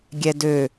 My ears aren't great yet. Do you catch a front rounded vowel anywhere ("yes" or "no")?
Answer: yes